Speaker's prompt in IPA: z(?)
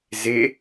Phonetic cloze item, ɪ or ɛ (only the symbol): ɪ